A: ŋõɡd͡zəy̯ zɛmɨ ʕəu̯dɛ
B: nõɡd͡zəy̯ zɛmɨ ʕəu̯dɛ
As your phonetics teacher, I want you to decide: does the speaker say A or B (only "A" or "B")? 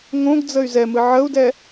A